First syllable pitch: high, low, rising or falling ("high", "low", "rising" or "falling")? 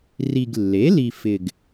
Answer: low